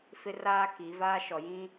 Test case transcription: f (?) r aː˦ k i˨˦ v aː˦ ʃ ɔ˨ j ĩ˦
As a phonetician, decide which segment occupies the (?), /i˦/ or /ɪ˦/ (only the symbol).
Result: ɪ˦